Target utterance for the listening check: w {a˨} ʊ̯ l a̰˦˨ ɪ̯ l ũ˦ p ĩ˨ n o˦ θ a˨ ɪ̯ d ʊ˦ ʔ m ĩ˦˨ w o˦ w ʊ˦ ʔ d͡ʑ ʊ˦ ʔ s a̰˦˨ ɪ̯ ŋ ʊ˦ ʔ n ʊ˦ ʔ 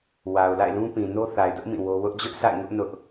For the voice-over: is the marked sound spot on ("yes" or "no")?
yes